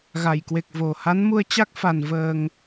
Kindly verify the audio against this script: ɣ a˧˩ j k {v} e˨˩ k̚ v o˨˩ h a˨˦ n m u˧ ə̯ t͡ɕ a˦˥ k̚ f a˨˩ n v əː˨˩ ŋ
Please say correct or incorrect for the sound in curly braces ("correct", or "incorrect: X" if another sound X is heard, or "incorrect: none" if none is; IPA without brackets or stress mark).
incorrect: w